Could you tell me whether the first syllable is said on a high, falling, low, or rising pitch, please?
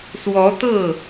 rising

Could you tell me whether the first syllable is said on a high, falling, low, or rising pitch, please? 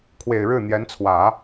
low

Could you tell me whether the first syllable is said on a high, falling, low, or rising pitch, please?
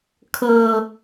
low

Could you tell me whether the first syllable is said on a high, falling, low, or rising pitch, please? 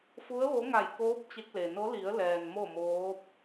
rising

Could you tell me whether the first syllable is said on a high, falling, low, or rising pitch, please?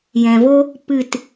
low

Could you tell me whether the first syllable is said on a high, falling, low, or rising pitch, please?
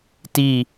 falling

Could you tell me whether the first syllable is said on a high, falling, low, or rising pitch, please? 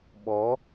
rising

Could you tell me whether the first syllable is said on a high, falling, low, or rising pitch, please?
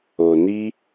low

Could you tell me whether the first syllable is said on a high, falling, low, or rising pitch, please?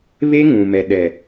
high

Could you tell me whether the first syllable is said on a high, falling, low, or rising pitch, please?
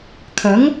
rising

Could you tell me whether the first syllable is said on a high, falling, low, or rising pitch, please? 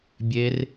high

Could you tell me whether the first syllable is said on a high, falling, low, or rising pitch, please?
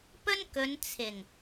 high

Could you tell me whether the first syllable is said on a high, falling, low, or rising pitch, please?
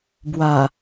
low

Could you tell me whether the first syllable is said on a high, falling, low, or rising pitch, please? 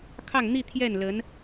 falling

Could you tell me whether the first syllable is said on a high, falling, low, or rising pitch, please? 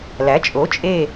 rising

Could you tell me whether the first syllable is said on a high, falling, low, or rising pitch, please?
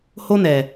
high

